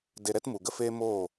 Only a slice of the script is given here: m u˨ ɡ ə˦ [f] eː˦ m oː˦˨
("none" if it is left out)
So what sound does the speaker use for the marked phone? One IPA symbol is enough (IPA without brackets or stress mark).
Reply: f